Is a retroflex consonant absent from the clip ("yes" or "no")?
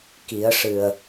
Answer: no